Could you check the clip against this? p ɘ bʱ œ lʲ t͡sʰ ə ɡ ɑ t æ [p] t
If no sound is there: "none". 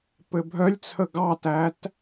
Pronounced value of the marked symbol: none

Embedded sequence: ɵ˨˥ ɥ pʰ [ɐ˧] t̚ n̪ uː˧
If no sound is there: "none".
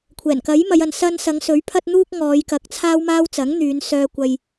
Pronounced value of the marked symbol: ɐ˧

